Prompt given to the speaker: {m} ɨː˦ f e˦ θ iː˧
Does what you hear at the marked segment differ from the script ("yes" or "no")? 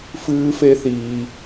yes